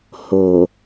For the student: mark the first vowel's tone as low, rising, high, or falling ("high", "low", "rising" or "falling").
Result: low